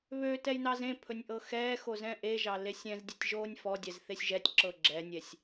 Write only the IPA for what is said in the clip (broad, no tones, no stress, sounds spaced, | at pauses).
β ø t ɛ j n ɑ z ẽ pʰ ɵ nʲ ʔ ɤ x ɛː x o z ɛ̃ ʔ e ʒ ɑ l e sʲ ɛ̃ z dʲ e tʲ ʒ oː nʲ f ɔ dʲ ɛ z θ e sʲ ʒ ɛ tʲ ǁ ɤ ɡ͡ǁ ɛ nʲ ɛ sʲ